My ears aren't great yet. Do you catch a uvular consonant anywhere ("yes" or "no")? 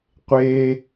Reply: yes